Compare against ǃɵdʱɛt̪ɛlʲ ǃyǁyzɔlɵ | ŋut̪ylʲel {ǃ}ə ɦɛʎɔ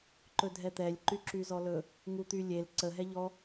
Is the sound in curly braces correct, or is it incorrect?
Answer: incorrect: ǀ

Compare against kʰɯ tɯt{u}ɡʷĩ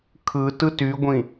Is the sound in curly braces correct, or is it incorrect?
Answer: incorrect: y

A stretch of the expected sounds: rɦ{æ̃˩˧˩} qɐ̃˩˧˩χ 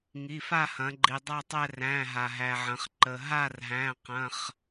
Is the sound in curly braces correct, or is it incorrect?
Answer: correct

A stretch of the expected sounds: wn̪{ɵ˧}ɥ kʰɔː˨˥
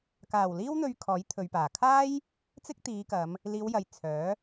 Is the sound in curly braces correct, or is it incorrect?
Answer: correct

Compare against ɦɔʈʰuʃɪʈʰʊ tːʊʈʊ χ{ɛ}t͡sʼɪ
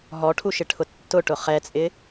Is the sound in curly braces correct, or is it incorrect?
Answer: correct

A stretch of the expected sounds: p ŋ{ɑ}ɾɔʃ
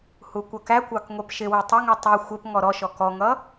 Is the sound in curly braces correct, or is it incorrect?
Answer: incorrect: ɔ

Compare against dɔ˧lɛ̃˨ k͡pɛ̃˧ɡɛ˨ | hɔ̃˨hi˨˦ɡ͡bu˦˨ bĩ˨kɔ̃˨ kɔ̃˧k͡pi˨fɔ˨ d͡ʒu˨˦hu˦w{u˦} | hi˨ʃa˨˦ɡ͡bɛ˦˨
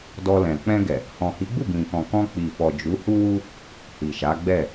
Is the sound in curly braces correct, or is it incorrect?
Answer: correct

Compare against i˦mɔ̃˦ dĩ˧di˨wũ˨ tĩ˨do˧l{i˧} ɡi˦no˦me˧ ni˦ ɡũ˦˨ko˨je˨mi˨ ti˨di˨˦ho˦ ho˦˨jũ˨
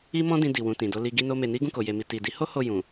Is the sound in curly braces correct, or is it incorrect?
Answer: correct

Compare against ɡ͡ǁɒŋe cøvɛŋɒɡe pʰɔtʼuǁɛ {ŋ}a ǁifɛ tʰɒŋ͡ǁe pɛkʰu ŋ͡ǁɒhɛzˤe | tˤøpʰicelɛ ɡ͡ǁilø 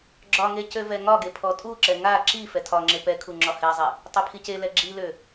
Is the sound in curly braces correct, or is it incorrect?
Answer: correct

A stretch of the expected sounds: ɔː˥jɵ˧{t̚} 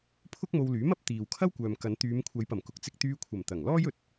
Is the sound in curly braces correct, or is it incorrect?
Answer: correct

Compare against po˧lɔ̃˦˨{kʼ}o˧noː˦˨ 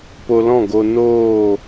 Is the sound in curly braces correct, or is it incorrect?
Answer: incorrect: ɡ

